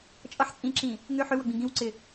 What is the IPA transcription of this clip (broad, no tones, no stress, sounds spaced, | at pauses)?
t͡ʃʼ ʌ ħ t͡sʼ ĩ ǁ ĩ | ŋ ʏ ħ ʏ w ʌ ɡ͡b ĩ ɡ ĩ w ǀ ɪ